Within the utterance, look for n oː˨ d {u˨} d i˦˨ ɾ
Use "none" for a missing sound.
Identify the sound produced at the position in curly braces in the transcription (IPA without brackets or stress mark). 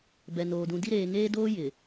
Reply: ũ˨